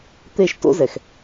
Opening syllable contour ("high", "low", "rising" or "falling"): falling